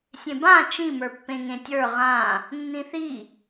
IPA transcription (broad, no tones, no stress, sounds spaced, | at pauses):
sʲ ẽ b ã t͡ʃ ĩ m ə˞ pː ẽ ŋ ẽ tʲ ə˞ ʁ ã | nː ĩ θ i